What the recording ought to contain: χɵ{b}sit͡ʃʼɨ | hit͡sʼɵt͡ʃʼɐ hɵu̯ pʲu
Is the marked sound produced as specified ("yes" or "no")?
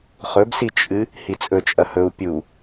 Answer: yes